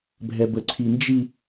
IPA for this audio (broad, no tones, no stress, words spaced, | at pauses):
bʱɛbəǀʰind͡ʒi